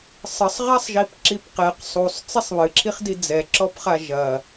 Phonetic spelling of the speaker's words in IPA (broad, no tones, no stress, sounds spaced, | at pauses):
sˤ ɘ sˤ ʁ a sˤ ʒ i p ǁ i p q ɛ q sˤ u sˤ t͡s i sˤ β ɨ ǁʰ i χ d i d͡z ɛ ǁ ɔ p χ a ʒ ɐ